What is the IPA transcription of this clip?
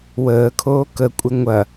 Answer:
w əː kʰ oː k ə kʷʼ ɪ ŋʷ ɐ

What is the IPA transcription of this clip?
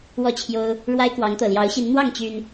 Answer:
w ɔ˥˨ t͡ɕʰ j o˦ ʊ̯ | ɻ w a˦ ɪ̯ k w ɑ˨˦ ŋ t̪ ɤ˨˩ l j ɑ˨˦ ʊ̯ ɕ i˨˦ n n̪ w ɑ˥˨ ŋ t͡ɕ y˨˩ n

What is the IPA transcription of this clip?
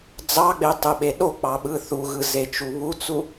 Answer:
d͡z ɑ ɡ͡b e tˤ ɯ ɓ e ɗ o k͡p ɑ ɓ ɯ θ u ɣ ɯ z e t͡ʃ u β u t͡s u

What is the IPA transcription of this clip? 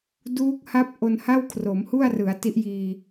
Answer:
d uː˦˥ k̚ h a˦˥ p̚ ʔ o˧ n h a˥˩ w kʰ r o˩˦ m h u˥˩ a̯ r ɯ˩˦ a̯ t i˦˥ ʔ j iː˧

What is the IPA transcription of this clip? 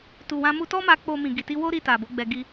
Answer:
t u˨ w ã˧ m u˧ t ɔ˦ m a˧ k͡p o˧ m ĩ˨ ɡ i˨ t i˧ w o˦ ɾ i˧ t a˨ b o˨˦ ɡ͡b ɛ˧ ɡ i˧

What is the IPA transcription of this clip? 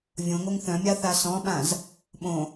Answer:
vʲ õ ŋ o ŋ θ œ̃ mʲ a θ a s ɔ̃ ɓ ã z | ɓ õ

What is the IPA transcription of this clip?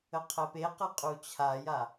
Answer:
ə qʰ ɛ p e q ə qʼ u t͡ɕʰ a j a

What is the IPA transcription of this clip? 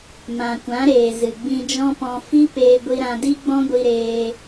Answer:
m ã˨ kʷ ã˨˦ ɾ eː˨ z ɨ˨ ɡ͡b ĩ˧ d͡ʒ ɔ̃˦ p ɔ̃˧ f i˦ p eː˧ ɡʷ i˧ ɾ ã˧ d i˦ ɡ͡b ɔ̃˦ ɡʷ i˧ ɾ eː˧

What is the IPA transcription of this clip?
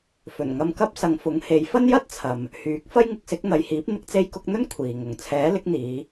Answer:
f ɵ˨˩ n ŋ ɐ˧ m k ɐ˥ p̚ s ɐ˨˧ ŋ f ʊ˨˥ ŋ h e˨˥ j f ɐ˥ n j ɐ˥ t̚ t͡sʰ ɐ˨ m | h yː˨˥ k̚ f ɐ˥ j ŋ ɪ˨˥ k̚ s ɪ˨˥ k̚ n̪ ɐ˨˧ j h iː˨˥ p̚ n̪ ɪ˧ k̚ t͡s e˧ j k ʊ˧ k̚ n̪ ɵ˥ n kʷʰ iː˨ ŋ ʊ˨ ŋ t͡sʰ ɛː˨˥ l ɪ˨˥ k̚ n̪ iː˨˧

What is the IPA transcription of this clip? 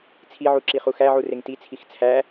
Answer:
t͡sʰ i ʕ u ǁ i χ u x æ ʕ u r e ŋ t i t͡sʰ i x t͡sʰ æ

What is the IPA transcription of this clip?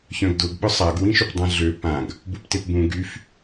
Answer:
ç œ̃ ɡ d ʊ ɡ ɓ ʊ sˤ a ɡ w ĩ ʃ ʏ p dˤ ã ɮ ø p ã ɡ | b u p t e p b ũ ɡ y f

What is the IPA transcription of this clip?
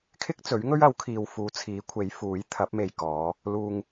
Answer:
kʰ ɪ˥ k̚ t͡s ɵ˨˥ ɥ ŋ ɵ˥ ɥ ɐ˨˥ w kʰ iː˨ w f uː˨˥ t͡sʰ iː˨˥ kʷʰ e˨˥ j f uː˨˥ j t̪ʰ ɐ˨˥ p̚ m e˨ j k ɔː˨˧ | l uː˧ ŋ

